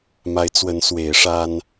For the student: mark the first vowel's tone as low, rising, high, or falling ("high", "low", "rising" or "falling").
rising